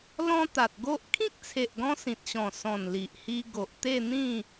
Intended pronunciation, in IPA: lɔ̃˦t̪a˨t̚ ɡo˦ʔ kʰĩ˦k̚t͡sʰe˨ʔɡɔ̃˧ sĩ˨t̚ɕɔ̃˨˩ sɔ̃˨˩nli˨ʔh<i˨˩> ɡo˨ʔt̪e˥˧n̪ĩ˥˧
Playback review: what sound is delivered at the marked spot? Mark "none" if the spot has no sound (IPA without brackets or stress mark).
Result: i˧